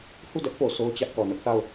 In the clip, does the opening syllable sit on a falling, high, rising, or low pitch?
falling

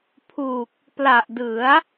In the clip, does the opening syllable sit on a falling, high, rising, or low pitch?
low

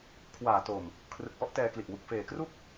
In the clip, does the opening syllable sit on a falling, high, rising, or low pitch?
low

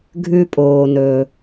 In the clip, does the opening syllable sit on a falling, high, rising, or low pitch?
low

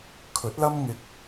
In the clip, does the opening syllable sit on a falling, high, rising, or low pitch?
rising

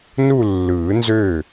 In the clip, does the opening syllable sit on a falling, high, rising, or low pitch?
falling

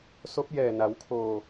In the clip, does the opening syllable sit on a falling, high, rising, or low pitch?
rising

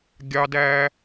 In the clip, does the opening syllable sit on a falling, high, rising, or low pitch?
high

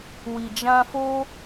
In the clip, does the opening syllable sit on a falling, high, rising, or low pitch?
low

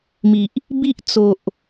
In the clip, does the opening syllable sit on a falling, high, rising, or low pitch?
low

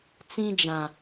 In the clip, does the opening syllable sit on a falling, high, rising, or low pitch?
high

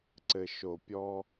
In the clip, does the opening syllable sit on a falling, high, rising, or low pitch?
low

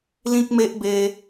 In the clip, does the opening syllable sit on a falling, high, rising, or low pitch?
high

